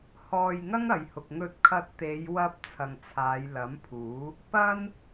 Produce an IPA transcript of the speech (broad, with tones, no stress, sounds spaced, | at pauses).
h ɔː˧ j ŋ ɐ˥ ŋ ɐ˨ j h ʊ˨ k̚ ŋ ɵ˧ t̚ kʰ ɐ˧ t̚ t̪ e˨˧ j w ɐ˧ p̚ t͡sʰ ɐ˨ ŋ t͡sʰ aː˨˧ j l ɐ˨˥ m pʰ uː˨˥ | p ɐ˥ n